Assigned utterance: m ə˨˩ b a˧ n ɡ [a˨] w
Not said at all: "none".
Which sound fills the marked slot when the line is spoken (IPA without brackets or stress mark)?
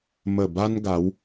a˨˦